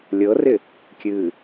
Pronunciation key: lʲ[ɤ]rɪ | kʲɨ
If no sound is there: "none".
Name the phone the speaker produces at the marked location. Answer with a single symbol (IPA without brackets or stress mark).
ɤ